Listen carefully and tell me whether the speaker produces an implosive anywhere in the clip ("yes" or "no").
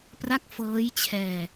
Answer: no